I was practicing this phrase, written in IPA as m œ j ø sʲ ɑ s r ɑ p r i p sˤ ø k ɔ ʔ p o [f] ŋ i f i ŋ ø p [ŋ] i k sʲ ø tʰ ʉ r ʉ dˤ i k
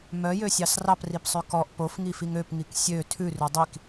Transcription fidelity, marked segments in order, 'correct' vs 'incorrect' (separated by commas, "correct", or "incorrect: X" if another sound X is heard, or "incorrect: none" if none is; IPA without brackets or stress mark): correct, correct